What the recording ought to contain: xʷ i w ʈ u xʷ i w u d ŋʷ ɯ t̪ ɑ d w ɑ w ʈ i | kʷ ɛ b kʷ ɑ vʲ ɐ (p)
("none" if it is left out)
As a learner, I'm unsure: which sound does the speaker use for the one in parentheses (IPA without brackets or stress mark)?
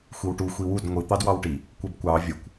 kʷ